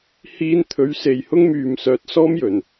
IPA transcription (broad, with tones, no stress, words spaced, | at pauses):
hiː˧nt̪ʰɵ˨˥ɥ se˨jhʊ˥ŋmyː˨m sœː˨˥t̚sɔː˥mjɵ˨˩n